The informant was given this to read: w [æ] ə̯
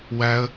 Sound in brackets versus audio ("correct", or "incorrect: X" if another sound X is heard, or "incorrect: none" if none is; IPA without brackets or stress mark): correct